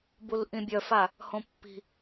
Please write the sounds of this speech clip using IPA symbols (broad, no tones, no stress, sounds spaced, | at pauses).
b u l ʔ ĩ bʲ œ f a | h õ pː i̤